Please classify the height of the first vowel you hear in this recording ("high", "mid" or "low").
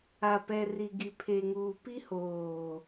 low